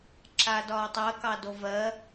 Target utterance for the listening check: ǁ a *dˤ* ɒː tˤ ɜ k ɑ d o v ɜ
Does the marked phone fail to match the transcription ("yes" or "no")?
yes